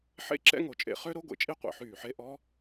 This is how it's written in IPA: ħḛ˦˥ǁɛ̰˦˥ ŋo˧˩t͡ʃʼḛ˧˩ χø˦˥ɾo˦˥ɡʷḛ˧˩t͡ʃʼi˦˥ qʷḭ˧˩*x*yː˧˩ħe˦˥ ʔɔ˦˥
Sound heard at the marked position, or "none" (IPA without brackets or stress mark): ħ